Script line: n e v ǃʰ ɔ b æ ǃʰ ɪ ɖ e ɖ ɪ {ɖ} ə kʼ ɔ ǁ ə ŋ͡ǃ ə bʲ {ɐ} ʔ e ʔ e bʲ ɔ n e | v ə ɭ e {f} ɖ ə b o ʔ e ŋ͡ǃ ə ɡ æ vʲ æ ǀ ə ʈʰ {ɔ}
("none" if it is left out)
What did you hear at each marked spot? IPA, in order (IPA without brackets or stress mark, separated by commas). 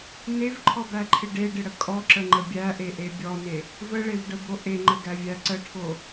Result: ɽ, æ, v, o